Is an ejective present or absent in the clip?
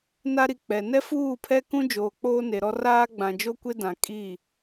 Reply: present